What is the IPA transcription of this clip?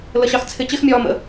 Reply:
ləɕɑxt͡sʰɪ t͡ɕɪx mʲɒːmə̰

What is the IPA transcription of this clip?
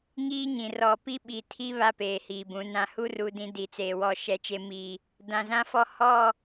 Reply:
ŋiː˦ɲĩ˨ rɔ˨pi˦ɓi˨ tʰi˦ βa˦peː˨hiː˨bũ˨˦ nã˨hu˦ru˨ dĩ˦ di˨t͡seː˨wɔ˦˨ ʃɛ˦t͡ʃe˦ mi˦˨ | dã˨zã˦fɔ˦˨ hɔ˦˨

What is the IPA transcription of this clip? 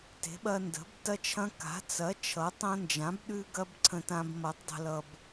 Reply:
te̤˨˥ɓɐ˦ndə̤˨˥b tɐ˦t͡ʃʰɐ̃˦ka̤˨˥ t͡sɐ˨˥ t͡ʃʰʌ˨˥tˤɐ̃˦nd͡ʒã˨˥b ɗʉ˦ɡɐ˦b ǀʰə̃˦tã˦b mʌ˨˥tˤdˤə̤˦lʌ˦b

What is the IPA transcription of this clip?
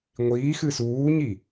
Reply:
ŋʷiːxɨ suːɲi

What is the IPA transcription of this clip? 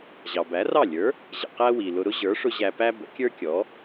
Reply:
ʑɑ˩bæ˩˥rɑ˥˩ lʲə˞˩˥ | ʑə̰˩ qæ˥wi˩lʊ˧ ɾʊ˥ʑə˞˩˥ʂʊ˧ ʑæ˧pæ˥ bə̰˩˥kʲə˞˥kʲɔ˩˥

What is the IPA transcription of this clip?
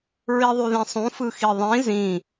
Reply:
ɹiðˤyðĩsˤũ fɯxiðˤĩ zĩ

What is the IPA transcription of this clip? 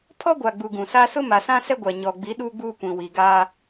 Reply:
pʰɔ˦ɡʷa˨ɡ͡bu˨ ɡũ˨sa˦ sʊ˦ma˨sã˦ sɛ˦ɡʷa˨ ɲɔ˨ɡ͡bi˨˦ ɗuː˦ɡ͡buː˦kʷĩ˨ wi˨ɡaː˦

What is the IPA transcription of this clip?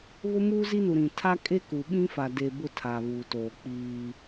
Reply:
βʊ˦muː˦zi˦ nu˨ɾĩ˨ tʰa˦kʼe˦ ku˨ ɓĩ˦fa˨de˨ bʊ˦˨ tʰa˨βuː˨toː˨ k͡piː˦

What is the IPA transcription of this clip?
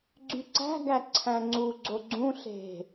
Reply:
ɡ͡ǀyǀæ̤ɡæ ǀʰæ̃ŋ͡ǀuɡ͡ǀo ɡ͡ǀũ ɬe̤

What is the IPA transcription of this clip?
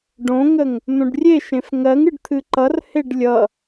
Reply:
ɖõŋəŋ | n̪õɖrʲeʃẽf ŋɜŋ ɨɖt̪ʰɨǃʌrheɖ lʲʌ

